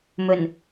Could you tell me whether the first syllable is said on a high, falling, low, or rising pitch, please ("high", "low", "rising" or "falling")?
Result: low